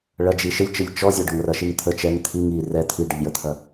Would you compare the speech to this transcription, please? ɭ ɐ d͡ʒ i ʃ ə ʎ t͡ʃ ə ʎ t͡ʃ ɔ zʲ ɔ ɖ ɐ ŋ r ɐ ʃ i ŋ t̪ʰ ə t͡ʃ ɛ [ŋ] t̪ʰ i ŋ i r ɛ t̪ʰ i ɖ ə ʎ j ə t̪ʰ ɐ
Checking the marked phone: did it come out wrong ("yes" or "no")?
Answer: no